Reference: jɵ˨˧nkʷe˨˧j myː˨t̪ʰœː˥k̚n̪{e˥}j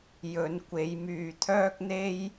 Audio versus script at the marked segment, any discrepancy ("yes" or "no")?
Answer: no